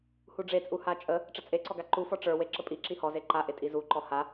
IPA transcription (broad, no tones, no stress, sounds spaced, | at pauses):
h u ɖ͡ʐ e t͡sʼ u h a t͡ʃʼ ə | ʈ͡ʂ ə t͡sʼ e ǀ ɔ ɡ a ǃ u f ɔ ʈ͡ʂ ə˞ w e ǁ ə pʼ i ǁ i h ɔ z e ǃ a ʔ e tʼ i z u ǃ ɔ h a